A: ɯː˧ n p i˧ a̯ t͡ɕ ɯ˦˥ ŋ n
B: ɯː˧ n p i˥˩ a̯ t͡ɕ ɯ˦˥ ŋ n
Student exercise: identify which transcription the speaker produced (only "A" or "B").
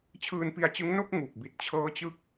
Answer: A